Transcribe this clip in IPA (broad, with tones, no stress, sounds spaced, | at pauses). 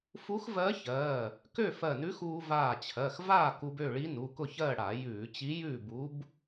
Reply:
f u˧˥ x v ɜ˧˥ ç ɜː˩˧˩ | k ø˥˨ f ɜ˧˩ n ʉ˧˥ x uː˧ v aː˧˩ t͡ɕʰ ɜ˩˧˩ x v aː˥˨ k u˧ b ø˥˨ ɭ i˧˥ n u˩˧˩ k ʊ˥˨ ç ɜ˥˨ ɽ a˧˩˧ j ʉː˧˩˧ t͡ɕ i˧˥ j ʉː˥˨ b u˧˥ b